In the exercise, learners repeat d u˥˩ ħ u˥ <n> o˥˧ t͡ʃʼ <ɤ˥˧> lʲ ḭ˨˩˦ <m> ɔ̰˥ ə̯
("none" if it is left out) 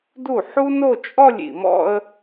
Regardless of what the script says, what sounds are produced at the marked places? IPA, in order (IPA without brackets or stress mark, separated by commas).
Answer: n, ɔ˥˧, m